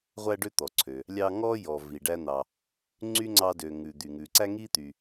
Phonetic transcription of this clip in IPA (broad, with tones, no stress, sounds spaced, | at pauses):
ʁʷ æ˦ ɖ ø˦ t̪ ɔ˩ ǀʰ ø˩ | lʲ ɑ˦ ŋ ɔ˥ j ɔ˨ v i˩ ɖ æ˦ n̪ ɑ˨ | ŋ͡ǀ y˥ ŋ͡ǀ ɑ˦ d ø˨ ŋ ʉ˨ d̪ y˨ ŋ ʉ˨ ǀ æ˥ ŋ i˥ t̪ y˨